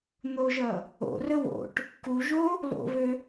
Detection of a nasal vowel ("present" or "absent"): absent